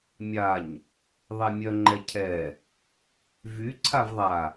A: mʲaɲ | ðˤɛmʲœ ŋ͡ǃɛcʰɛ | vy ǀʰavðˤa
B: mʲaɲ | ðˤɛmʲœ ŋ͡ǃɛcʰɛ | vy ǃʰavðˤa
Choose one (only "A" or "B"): A